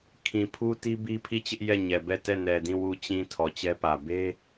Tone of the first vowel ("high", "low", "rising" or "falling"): low